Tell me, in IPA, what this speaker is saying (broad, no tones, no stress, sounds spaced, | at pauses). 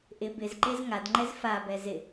ʔ ɪ b ɪ z ǃ e z ŋ a d ŋ͡ǃ ɛ z f a b ɛ z ɪ